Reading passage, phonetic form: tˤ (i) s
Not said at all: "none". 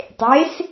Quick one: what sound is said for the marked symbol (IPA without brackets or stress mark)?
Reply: e